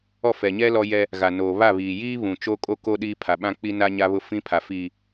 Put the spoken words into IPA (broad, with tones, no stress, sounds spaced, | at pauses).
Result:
ɔ˦˨ f ɛ˨ ɲ ɛ˦ l ɔ˦ j ɛ˦ | ɣ a˨ n oː˨ β a˦˨ β iː˨ j iː˦ β ũ˨ t͡ʃ o˦ kʼ o˦ k o˦ ɗ iː˦ pʰ a˨ ɓ ã˦ k͡p i˦ n a˦ ɲ a˦ β ʊ˦ f ĩ˦ pʰ a˨ f iː˨